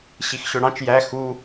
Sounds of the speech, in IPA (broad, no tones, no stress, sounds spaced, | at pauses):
ɕ i x ɕ ø ɽ ɑ̃ t͡ʃ j æ x u